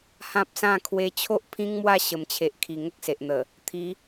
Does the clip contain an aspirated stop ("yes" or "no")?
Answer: yes